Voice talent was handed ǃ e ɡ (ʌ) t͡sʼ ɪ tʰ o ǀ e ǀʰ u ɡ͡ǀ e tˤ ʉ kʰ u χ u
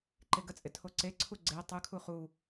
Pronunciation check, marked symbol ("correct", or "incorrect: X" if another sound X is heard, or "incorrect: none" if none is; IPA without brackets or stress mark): incorrect: ə